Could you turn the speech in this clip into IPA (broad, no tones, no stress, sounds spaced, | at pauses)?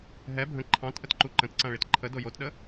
ɦ ɛ bʱ ə̃ ǃʰ ɑ̃ t ʔ ə t ǃ u ǃ ə̃ t ǀ ã ɭ i t ǃʰ ə d o j o t ɗ ə